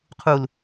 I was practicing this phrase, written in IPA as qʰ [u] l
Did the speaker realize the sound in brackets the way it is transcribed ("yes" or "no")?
yes